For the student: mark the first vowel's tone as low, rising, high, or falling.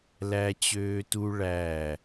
high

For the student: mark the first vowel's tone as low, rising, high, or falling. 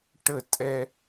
falling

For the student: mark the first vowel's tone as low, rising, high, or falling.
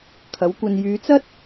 rising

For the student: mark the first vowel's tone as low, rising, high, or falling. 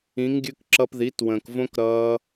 rising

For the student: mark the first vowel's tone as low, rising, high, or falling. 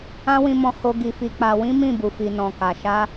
high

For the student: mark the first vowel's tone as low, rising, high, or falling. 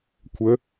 rising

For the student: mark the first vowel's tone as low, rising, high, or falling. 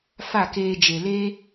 falling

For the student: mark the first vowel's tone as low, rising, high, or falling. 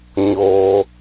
low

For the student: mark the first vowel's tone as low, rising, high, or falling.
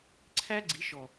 high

